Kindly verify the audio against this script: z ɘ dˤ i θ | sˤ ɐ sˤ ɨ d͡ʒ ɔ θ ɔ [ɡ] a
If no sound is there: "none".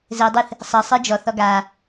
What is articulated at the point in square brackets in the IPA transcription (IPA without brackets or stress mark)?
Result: ɡ